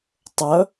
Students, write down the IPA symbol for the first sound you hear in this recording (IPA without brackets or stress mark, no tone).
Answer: tˤ